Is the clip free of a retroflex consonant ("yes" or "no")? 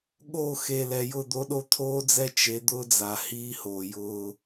yes